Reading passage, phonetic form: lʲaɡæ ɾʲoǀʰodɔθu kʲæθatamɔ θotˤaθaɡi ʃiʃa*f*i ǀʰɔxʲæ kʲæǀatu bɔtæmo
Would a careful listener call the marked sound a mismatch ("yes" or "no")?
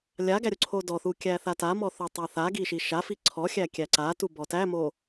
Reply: no